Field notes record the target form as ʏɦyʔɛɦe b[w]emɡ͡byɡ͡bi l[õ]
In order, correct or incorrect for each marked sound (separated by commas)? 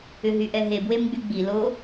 correct, incorrect